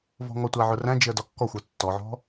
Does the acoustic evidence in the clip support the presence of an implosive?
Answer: no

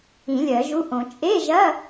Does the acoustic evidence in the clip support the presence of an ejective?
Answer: yes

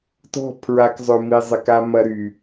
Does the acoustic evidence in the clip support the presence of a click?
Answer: no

